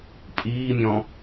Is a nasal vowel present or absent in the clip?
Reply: present